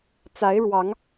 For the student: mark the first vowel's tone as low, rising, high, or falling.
rising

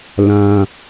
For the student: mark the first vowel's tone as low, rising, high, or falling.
high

